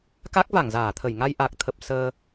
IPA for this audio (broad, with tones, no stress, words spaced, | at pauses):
ka˦˥k̚va˧˩ŋ zaː˧˩t̪ʰə˧˩j ŋa˧jʔa˨˩k̚t̪ʰə˨˩p̚ səː˧